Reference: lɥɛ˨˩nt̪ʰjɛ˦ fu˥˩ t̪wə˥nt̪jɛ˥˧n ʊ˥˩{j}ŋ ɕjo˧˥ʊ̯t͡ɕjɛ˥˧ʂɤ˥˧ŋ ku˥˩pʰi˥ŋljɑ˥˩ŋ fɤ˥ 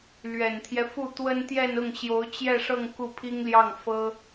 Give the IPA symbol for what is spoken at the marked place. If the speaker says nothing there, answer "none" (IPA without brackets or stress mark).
none